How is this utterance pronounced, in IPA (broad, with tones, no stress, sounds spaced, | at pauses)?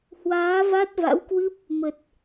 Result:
h w aː˨˦ v a˦˥ t̚ v a̰˧˥ w k w ɨ˦˥ p̚ | m ə˨˩ t̚